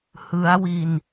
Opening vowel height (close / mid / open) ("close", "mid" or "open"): close